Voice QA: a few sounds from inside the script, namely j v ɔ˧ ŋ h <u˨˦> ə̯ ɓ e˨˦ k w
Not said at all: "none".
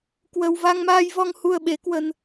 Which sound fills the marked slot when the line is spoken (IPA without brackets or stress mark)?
u˧